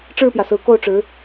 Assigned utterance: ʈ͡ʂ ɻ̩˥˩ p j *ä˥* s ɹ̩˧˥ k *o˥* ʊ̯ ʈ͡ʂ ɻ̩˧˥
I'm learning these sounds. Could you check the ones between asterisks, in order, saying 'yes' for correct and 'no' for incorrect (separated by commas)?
no, no